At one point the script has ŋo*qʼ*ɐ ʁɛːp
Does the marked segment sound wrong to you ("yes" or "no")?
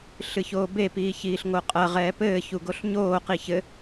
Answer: no